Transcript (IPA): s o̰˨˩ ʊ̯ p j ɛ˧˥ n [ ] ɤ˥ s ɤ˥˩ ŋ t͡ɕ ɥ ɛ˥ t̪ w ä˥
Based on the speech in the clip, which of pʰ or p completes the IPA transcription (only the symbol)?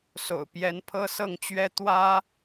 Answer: pʰ